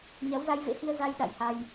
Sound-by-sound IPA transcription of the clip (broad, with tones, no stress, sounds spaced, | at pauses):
ɲ a˨˦ w z a˧ j v ḛ˧˥ h i˧ ə̯ z a˧ j ɗ a̰˧˨ j h a˧ j